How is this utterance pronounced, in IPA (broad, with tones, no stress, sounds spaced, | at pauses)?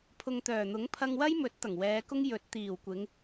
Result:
pʰ ʊ˨ ŋ t̪ œː˨˩ n̪ ʊ˨˥ ŋ pʰ ɐ˧ ŋ w ɐ˥ j m ɵ˨˥ t̚ t̪ ɐ˨˩ ŋ w ɛː˨˧ k ʊ˥ ŋ j ɵ˨˥ t̚ t̪ iː˨˩ w kʷ ɪ˨˧ ŋ